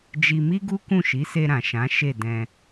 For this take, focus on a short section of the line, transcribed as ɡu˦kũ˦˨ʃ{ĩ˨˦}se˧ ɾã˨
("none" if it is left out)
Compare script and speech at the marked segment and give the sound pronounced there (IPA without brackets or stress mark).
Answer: i˨˦